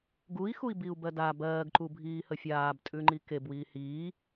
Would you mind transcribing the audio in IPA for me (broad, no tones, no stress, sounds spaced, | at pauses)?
ɡ u i̯ x u i̯ b i u̯ b ɜ d a b ɜː ɡ ǃ u bʱ iː h ə fʲ aː b tʼ ʉ ŋ͡ǃ i k e b w iː h iː